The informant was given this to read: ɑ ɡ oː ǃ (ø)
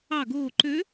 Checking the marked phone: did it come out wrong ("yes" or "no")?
no